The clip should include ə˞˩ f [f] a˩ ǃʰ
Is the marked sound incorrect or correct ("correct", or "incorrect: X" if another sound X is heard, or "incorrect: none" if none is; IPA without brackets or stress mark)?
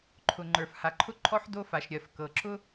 incorrect: h